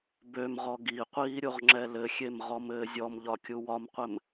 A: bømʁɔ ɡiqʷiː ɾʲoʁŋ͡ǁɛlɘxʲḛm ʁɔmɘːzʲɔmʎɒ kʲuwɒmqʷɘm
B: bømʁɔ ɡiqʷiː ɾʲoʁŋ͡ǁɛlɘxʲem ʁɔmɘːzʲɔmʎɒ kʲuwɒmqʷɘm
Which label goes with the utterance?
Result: B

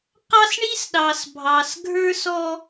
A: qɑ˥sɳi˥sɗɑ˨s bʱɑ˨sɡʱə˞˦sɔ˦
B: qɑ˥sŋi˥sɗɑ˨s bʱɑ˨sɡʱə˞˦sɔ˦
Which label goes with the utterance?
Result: A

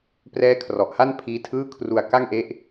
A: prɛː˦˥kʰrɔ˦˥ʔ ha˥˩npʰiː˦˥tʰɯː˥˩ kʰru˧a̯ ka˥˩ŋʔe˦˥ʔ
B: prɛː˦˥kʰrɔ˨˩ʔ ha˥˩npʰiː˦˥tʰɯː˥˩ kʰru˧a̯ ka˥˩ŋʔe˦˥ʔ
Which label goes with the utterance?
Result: B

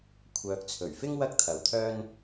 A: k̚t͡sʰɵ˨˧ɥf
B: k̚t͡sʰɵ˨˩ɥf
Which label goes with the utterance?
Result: B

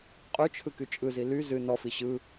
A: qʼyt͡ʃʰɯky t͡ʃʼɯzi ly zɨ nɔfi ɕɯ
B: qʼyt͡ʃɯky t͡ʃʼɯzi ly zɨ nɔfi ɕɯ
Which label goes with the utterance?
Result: A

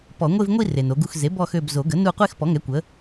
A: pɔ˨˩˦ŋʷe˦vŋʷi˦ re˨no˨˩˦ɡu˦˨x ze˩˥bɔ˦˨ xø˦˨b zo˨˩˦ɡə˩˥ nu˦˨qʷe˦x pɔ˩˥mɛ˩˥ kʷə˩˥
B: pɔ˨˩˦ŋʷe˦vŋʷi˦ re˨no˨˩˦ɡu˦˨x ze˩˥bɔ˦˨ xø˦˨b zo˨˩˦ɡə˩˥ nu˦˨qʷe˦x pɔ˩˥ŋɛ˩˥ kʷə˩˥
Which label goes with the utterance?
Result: B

